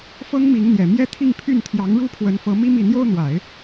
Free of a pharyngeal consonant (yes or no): yes